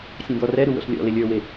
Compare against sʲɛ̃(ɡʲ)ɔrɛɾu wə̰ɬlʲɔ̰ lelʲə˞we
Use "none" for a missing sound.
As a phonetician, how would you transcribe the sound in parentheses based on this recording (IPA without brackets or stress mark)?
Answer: d̪